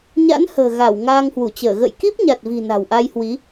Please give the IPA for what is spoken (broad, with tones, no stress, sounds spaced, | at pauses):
ɲ a̰˧˥ n h ə̤ː˨˩ ɣ a˧˩ w ŋ aː˧ ŋ h w u˧˩ t͡ɕ əː˧˩ ɣ ə̰˧˨ j k i˦˥ p̚ ɲ a˨˩ t̚ v i̤˨˩ n a̤˨˩ w ʔ a˧ j h w i˨˦